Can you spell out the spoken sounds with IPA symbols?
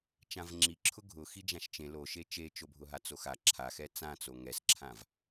t͡ʃ ã v ŋ͡ǁ i ǁʰ ʊ ɡʱ ʊ x i d͡ʒ ã ʃ t͡ʃ ẽ l o ʃ e t͡ʃ e t͡ʃ o bʱ ʊ ɦ a t͡s o x a ǁʰ a x ɛ t͡s ã t͡s o ŋ ɛ s ǁʰ ã v

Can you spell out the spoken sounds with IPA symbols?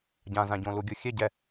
ɟ ã z ã ɟ õ l u ɡʲ u xʲ ɛ ɟ ɛ

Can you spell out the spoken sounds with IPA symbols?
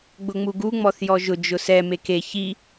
ɡ͡b ʊ ŋ͡m u ɡ u ŋ͡m ɔ θ j ɔ ʒ ʊ d͡ʒ ʊ s ɛ m e k e ç i

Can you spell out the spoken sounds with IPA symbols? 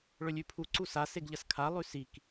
ɭ ɵ lʲ ʉ pʰ u ǀ u s a s e ɡ ʎ ɐ s kʰ a lˠ ʉ s i k

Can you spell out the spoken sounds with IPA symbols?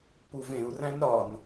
p u v ẽ u̯ r æ̃ n ɾ ɒ n

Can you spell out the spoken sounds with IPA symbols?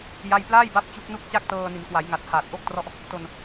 j a˥˩ j p l aː˥˩ j b a˦˥ p̚ t͡ɕ u˦˥ k̚ n u˥˩ k̚ t͡ɕ a˥˩ k̚ t ɤː˧ n i˩˦ n k w a˩˦ j ŋ a˨˩ t̚ h aː˨˩ t̚ ʔ o˥˩ k̚ t r ɔ˥˩ ʔ | t o˧ n

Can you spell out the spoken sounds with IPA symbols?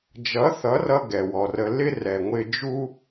d͡ʒ ʌ˨˦ θ ʌ˨˦ r ʌ˧ ɡ ɛ˨ w ɔ˨ r ə˧ l ɪ˦ r ɛ˨ ŋʷ ɪ˧ d͡ʒ u˦

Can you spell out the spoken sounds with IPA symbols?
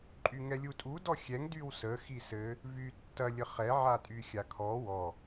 ǃʼ y ŋ ɛ lʲ u tʼ u d ɔ xʲ ɛ ŋ d y w s ə x i s ɘ | v y tː ɐ lʲ ə χ ɛ ʕ a tʼ y xʲ a kʰ ɔ w ɔ

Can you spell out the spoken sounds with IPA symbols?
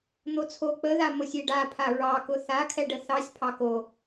n̪ o t͡sʰ o k͡p ə ð a m o sʲ e ɖ a pʰ a ɹ ɑ k ʊ θ a kʰ ɛ ɖ ə θ ɑ sʲ pʰ ɑ k o

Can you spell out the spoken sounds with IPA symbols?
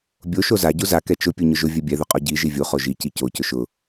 bʲ o ʃ o z a ɟ u z a k ɛ t͡ʃ ʊ pʲ u ɲ ʊ ʒ ʊ vʲ ɛ bʲ ɛ ð ʊ qʼ ɔ ɟ i ʒ i vʲ u χ o ʒ i c i c o c ʊ ʃ ʊ

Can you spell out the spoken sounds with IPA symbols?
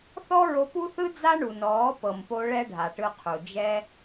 θ ɔ˦ ɹ o˧ p u˦ θ ɯ˦ d͡z a˦ ɳ u˨ n ɔː˨˦ p ɤ˨ m p o˧ ɭ ɛ˦ ɖʱ a˨ ʈ ɯ˧ qʰ u˨ d͡ʒ ɛ˦

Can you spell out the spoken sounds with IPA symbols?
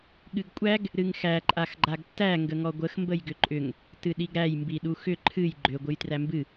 ɠ ɨ ɡ kʷʼ æ ɡ | ɾ ɨ ŋ x æ ǃʼ a x ɡ͡ǃ a ɡ tː æ ŋ ɡ ə ŋ ɔ ɡʷ ə x m b ə j ɡ ʏ ǃʼ ʏ ŋ | t ɨ ɗ i ɡ ɾ æ j m b i ɗ u x ʏ ǃʰ ɨ j ɡ͡ǃ ʏ ɡʷ ɨ j t r æ m b ɨ

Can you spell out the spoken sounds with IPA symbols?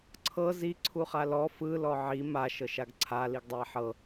ǀʰ ɤ z i ǀʰ u χ a l ɔ f ɯ l ɔ ʕ i m a ʃ ɤ ʃ a ɡ ǀʰ a l i ɡ dˤ a ħ ɤ

